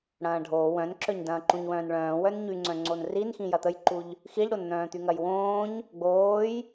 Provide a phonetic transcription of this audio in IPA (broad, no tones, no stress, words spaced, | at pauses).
ɽɐ̃ːɖʱoː wœ̃nǁœɲ dɐ̃ːǃũɲwœ̃ːnɭœ̃ː wœnɲy ŋ͡ǀœ̃ŋ͡ǀonrinxĩ jɐt̪əjǃuʎ | xiʎɽonn̪œ̃ː t̪yŋɐjwõːɲ | ɡ͡boːj